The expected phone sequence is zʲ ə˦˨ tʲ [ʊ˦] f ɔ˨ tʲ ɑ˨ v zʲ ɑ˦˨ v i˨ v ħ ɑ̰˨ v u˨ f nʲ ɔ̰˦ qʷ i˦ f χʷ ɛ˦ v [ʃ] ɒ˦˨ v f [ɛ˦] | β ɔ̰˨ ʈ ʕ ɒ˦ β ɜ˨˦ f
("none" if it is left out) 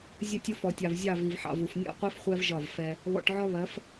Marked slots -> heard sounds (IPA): ʊ˦, ʒ, ɛ˦

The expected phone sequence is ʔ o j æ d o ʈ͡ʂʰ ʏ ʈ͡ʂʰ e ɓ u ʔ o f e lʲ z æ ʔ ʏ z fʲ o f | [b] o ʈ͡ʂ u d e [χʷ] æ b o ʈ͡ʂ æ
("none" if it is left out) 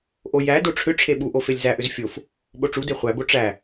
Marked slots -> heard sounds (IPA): ɓ, χʷ

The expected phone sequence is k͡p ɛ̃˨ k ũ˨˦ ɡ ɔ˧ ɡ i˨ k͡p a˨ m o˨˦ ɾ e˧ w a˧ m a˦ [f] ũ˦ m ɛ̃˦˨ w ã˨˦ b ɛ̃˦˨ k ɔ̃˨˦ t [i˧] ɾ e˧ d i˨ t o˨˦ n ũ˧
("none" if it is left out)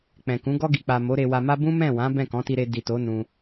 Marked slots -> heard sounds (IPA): b, i˧

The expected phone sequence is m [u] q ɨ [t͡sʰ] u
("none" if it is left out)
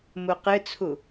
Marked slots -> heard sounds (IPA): u, t͡sʰ

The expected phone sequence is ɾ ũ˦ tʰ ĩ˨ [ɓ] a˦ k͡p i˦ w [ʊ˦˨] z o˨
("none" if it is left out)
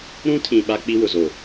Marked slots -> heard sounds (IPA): ɓ, ʊ˨

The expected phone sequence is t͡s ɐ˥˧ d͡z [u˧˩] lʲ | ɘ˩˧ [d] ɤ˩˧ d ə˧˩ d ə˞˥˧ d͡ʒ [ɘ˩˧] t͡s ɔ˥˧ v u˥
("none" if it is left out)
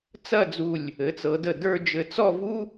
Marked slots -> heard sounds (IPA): u˧˩, t͡s, ɘ˧

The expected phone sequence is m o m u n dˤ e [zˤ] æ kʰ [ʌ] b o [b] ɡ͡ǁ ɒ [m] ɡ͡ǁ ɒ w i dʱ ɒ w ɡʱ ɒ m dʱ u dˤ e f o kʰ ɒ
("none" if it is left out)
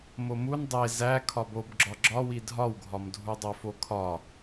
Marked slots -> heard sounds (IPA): z, ɒ, b, none

